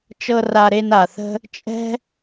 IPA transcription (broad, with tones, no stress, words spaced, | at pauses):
t͡ʃɤ˧ ra˧ɾe˧n a˨θə̤˦ | t͡ʃʼɛ̤˦